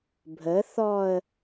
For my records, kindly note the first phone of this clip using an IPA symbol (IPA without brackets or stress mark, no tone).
bʱ